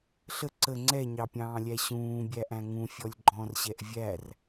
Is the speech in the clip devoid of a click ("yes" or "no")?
no